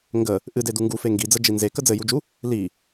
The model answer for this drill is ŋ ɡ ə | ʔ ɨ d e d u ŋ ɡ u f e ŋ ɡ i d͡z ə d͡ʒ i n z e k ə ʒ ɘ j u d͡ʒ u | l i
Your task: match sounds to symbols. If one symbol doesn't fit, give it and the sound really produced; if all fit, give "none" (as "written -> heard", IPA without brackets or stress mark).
ʒ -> d͡z